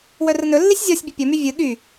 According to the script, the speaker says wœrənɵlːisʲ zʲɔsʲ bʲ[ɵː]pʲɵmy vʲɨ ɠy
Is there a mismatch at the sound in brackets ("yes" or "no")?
yes